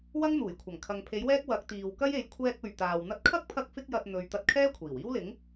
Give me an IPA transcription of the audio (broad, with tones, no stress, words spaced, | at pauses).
wɐ˥ŋn̪uː˨˩jkʷʰɐ˨˩ŋ kʰɐ˨ŋpʰe˨˥jwɛː˥k̚ wɐ˨˥k̚ t̪iː˨wkɐ˥je˨˥j kʷʰɛː˧k̚ɵ˨ɥ t̪aː˨w n̪ɐ˧t̚kʰɐ˥k̚pʰɐ˧k̚ fɪ˥k̚jɐ˧t̚ n̪ɵ˨˧ɥt̪ɐ˧t̚ kʰɛː˥kʷʰiː˨˩wiː˥wlɪ˨˥ŋ